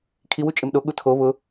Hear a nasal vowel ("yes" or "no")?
no